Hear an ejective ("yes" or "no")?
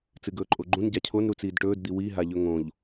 yes